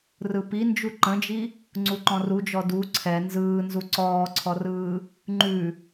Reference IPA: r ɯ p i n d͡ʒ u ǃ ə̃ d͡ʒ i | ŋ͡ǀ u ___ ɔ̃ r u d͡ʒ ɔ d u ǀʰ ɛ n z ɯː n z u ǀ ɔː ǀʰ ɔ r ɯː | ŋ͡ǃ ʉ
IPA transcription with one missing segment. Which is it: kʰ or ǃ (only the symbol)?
ǃ